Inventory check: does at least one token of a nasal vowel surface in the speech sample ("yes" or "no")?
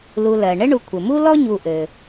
no